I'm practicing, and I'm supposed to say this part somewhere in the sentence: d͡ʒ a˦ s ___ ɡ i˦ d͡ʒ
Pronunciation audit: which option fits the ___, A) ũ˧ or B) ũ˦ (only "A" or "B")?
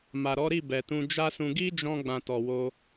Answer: A